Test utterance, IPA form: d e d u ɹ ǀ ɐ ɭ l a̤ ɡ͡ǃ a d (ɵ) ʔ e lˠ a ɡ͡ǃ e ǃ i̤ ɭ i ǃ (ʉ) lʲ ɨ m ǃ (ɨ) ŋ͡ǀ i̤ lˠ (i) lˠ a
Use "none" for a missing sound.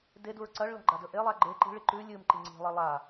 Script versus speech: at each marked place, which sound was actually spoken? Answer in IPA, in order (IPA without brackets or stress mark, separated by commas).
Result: ɵ, ʉ, i, i